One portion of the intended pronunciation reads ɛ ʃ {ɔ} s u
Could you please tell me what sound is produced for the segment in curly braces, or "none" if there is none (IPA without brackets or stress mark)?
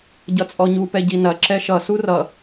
ʌ